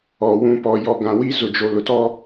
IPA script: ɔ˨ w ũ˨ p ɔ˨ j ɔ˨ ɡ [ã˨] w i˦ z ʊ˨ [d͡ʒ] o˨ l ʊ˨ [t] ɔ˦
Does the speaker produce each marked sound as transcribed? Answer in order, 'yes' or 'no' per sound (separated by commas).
yes, yes, yes